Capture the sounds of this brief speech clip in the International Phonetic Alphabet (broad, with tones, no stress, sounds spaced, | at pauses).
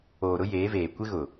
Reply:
oː˨ ɾ ʊ˦ j eː˨˦ v eː˨ kʷ ɪ˦ ɣ ʊ˨